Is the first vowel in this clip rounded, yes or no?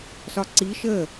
yes